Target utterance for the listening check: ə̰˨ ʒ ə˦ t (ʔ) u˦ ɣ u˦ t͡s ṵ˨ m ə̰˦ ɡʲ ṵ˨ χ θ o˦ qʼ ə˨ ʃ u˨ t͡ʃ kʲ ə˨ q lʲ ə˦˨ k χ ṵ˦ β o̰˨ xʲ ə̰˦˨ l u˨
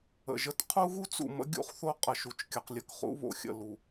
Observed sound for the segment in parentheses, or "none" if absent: qʰ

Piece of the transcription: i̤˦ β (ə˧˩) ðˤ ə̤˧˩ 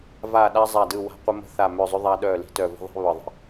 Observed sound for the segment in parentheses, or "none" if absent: ə˧˩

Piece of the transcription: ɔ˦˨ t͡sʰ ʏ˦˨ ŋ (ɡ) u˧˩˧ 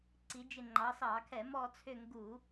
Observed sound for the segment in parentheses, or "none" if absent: ɡ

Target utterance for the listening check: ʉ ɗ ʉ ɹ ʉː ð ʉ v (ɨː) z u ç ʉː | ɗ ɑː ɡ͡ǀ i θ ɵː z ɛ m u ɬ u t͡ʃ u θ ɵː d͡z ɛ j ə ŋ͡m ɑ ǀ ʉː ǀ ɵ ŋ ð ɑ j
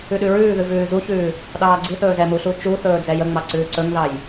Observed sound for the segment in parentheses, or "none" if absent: ʉː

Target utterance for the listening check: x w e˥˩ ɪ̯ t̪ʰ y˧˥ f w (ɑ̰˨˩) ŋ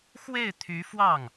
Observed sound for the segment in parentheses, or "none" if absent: ɑ˥˩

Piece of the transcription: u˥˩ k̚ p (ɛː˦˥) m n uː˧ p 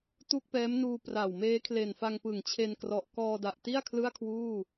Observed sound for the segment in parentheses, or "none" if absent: ɛː˦˥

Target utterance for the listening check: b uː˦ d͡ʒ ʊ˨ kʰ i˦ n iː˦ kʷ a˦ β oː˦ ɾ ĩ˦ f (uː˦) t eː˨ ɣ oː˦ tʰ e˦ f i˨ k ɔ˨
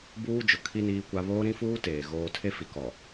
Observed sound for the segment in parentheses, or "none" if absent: uː˦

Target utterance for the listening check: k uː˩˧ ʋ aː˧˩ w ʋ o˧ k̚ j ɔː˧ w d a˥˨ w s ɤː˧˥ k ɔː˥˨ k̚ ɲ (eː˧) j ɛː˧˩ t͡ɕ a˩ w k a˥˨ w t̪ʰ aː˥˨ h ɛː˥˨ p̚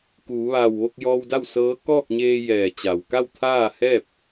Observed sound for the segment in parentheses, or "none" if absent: eː˧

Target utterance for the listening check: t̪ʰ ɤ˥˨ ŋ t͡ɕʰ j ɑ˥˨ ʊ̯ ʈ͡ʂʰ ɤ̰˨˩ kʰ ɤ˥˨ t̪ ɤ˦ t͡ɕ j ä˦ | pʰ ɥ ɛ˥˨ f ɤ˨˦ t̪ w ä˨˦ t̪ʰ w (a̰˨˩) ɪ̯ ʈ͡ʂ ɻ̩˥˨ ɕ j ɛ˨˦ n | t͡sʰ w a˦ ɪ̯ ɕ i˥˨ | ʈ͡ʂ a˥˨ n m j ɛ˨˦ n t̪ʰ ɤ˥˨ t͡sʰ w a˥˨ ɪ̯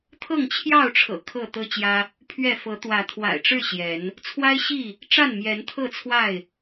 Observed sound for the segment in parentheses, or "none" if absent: a̰˨˩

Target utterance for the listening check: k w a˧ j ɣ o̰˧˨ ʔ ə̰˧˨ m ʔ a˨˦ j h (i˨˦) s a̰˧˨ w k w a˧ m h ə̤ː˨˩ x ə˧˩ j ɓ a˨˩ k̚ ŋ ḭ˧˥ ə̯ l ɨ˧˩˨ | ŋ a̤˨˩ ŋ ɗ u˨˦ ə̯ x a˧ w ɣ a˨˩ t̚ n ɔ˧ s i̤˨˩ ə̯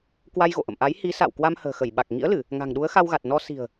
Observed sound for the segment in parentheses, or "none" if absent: i˨˦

